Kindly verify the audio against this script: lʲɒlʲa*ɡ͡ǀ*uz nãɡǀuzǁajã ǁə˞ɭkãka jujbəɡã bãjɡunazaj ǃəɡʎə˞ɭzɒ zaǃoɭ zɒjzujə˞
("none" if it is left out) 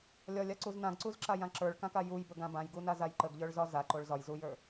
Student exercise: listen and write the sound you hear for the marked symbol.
ǀ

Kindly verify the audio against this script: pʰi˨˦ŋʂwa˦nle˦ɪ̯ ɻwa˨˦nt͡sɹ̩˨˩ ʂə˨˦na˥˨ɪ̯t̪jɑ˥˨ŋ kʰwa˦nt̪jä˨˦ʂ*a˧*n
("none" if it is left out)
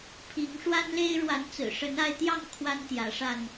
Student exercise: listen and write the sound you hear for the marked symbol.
a˧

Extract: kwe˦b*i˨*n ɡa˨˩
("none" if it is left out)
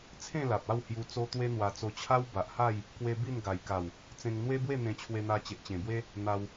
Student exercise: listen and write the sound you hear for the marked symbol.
i˥˧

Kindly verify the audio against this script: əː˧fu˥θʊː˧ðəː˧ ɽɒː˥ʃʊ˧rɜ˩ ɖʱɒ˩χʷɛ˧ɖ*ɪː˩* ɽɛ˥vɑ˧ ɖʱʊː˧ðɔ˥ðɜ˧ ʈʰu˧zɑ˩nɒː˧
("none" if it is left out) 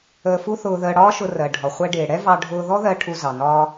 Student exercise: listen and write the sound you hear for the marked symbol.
ɪː˩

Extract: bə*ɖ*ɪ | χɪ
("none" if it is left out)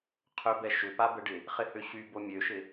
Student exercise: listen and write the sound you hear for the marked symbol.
ɖ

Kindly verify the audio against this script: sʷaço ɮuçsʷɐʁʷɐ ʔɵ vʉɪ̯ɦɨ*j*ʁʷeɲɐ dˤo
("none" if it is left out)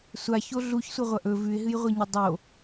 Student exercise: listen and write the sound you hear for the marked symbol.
j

